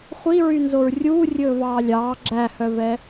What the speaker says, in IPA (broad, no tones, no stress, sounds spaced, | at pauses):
χʷ i ɹ y n z o ɹ rʲ uː rʲ ɵː v ɑː lʲ ɑː ɡ͡ǁ æ h œ v ɛ